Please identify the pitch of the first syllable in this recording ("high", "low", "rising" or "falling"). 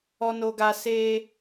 high